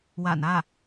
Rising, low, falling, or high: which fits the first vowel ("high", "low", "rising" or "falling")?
low